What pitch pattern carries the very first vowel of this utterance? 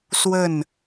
falling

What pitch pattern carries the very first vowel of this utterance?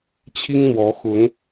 high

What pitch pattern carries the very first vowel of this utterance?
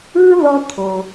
high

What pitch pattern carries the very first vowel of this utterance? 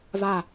falling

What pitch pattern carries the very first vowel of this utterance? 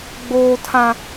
high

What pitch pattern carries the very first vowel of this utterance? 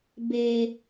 low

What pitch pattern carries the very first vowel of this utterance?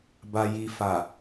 low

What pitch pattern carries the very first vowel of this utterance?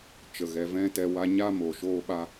low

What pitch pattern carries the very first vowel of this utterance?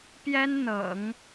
high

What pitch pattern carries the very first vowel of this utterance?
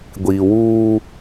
low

